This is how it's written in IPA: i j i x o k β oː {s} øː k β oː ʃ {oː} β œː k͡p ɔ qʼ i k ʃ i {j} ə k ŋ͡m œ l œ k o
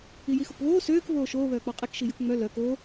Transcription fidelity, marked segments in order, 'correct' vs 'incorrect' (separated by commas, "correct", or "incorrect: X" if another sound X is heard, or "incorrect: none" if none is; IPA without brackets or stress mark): correct, correct, correct